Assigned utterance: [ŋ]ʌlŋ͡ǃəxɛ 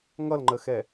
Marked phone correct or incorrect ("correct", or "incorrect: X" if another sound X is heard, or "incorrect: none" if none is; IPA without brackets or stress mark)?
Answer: correct